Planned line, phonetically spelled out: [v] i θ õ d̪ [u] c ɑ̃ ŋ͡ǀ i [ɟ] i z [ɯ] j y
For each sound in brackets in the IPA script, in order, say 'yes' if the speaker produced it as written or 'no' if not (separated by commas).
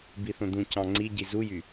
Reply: no, no, yes, no